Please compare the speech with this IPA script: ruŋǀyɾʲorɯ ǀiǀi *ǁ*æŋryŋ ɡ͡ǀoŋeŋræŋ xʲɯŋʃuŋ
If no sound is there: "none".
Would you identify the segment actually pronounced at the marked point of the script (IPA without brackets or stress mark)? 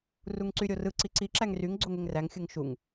ǁ